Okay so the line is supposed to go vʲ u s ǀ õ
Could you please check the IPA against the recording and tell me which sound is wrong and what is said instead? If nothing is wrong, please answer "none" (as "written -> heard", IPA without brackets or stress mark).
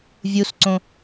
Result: none